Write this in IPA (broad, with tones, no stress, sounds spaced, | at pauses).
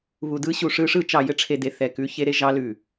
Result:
β u˨ d ɯ˦ ɕ u˨ ʂ ɯ˦ ʂ ɯ˦ t͡ʃ ɑ˨ j ɘ˦ ʈ͡ʂʰ e˨ d e˨ θ ɛ˨ k ʉ˨˦ ç e˦ ɾ e˦ ʒ ɑ˦ l ʉ˨